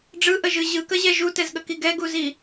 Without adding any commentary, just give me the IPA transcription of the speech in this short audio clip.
ɖ͡ʐ ɯ ʔ ə ʒ ɯ ʑ ɯ k ə ʑ ɛ ʒ u t ɛ z ɠ ə k i ɡ ɛ ɡ u z i

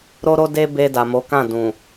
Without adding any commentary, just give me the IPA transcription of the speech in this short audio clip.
ɾ o˧ ɾ o˧ d e˧ b e˧ d a˨ m o˨˦ k ã˦˨ d ũ˨

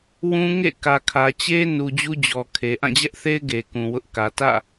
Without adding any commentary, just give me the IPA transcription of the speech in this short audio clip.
w ũ˦ ŋ ḛ˦˨ k ä˨ kʰ ä˨ t͡ɕ e˦ n u˨ d͡ʑ u˦ d͡ʑ ɔ˨ kʰ e˨ ʔ ã˦˨ d͡ʑ ɛ˦ ʔ θ e˦ ɪ̯ ɡ e˨ k ũ˨ w ʊ˦ ʔ k ä˨ t ä̰˦˨

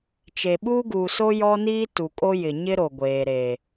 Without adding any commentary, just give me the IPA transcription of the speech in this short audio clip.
t͡ʃ e˨ ɓ uː˦ ɡ uː˨ s o˦ j ɔ˦ n iː˦ t u˨ kʼ o˦ j ɪ˨ ɲ ɪ˦ ɾ o˨ ɡʷ eː˨ ɾ e˨

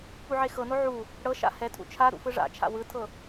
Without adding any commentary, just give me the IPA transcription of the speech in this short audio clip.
p u ʕ e x ɤ n o ʕ u | ɽ ɤ ʃ a̰ h ɛ tʰ ṵ t͡ʃʰ a ɾ ṵ f ɯ ʐ a̰ t͡ʃʰ a̰ w ɯ tʰ ɤ

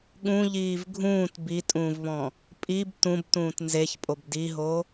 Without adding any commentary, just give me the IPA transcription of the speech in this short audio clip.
ɠ ũ ʎ iː v ɡʱ ũː t b i tʼ ũː v β ɔ̃ | pʼ i b t ũ b t ũː t n z e ç pʼ o b d i ɦ o

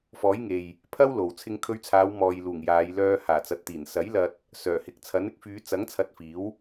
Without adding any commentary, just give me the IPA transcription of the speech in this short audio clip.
f ɔː˨˥ j ŋ e˨ j | pʰ ɐ˥ w l o˨ w t͡sʰ ɪ˧ ŋ kʰ ɵ˧ ɥ t͡sʰ aː˨˧ w m ɔː˨ j l uː˨˩ ŋ j aː˨˧ j l œː˧ h aː˨˩ t͡s ɐ˨ t̚ t̪ iː˨˩ n s ɐ˨˥ j l ɐ˧ t̚ | s œː˨˩ h ɪ˨ k̚ t͡sʰ ɐ˨˥ n ɪ˧ k̚ f yː˨˧ t͡s ɐ˨˥ ŋ t͡sʰ ɐ˧ t̚ f iː˨˥ w

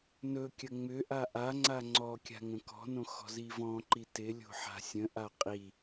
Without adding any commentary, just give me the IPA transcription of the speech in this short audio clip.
n ɵ kʲ ə ŋ͡m ʏ ʔ a ʔ a ŋ͡ǀ a ŋ͡ǀ ɔ kʲ a̤ ŋ ə̃ k ɔ̤ n õ x ɔ̤ z i v ɔ̃ ǃ i t ɪ lʲ o̤ ħ a̤ sʲ ə̃ ʔ a qʼ i

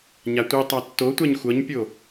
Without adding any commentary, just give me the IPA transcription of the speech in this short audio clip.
ɲ a tʷ i tˤ a tː o tʷ a ɲ xʷ ʌ ɲ pʲ o

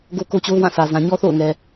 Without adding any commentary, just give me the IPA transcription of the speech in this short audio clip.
ɡ o˦ k o˦ t͡ɕ o˦ ʊ̯ w ã˦˨ sʰ ä˨ z ã˨ ɲ ɔ˦ θ o̰˦˨ ʊ̯ ŋ ɛ˨

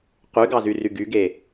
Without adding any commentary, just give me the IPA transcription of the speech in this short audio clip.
q y ɡ ɑ z y r y ɡ y ɡ e

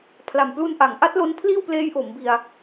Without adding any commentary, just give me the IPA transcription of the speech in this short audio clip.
pʰ l a˨˩ m p l u˧ n ʔ a˩˦ ŋ ʔ a˦˥ t̚ l o˦˥ n pʰ l iː˥˩ w p l eː˦˥ j ʔ o˩˦ m b i˧ a̯

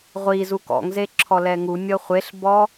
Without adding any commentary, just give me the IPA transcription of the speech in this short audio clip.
ʁʷ i z u k ɔ̰ ŋ z e ǁʰ ɔ l ɛ ŋ u nʲ ɤ χʷ e ɬ b ɔ

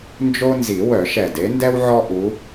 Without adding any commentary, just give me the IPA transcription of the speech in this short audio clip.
n d͡ʒ o˦ n z i˨˩˦ w œ˨˩˦ ʃ ɛ˨˩ d e˨˦ n d ɛ˦ w ʕ ɔ˦ ʔ u˨˦

